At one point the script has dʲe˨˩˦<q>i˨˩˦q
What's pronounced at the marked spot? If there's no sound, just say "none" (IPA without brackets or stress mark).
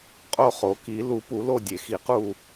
x